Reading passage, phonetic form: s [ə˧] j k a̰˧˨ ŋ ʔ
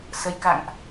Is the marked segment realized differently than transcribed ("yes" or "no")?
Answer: no